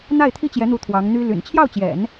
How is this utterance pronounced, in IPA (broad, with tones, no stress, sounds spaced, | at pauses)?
n̪ a˥˩ ɪ̯ t̪ʰ i˥ t͡ɕ j ɛ˧˥ n̪ u˧˥ t̪ʰ w ɑ˧˥ ŋ n̪ y˥ l y̰˨˩ n t͡ɕʰ j ɑ˥˩ ʊ̯ t͡ɕ j ɛ̰˨˩˦ n